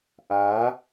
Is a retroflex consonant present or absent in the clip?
absent